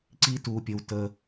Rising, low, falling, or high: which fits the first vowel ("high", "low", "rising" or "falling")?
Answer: high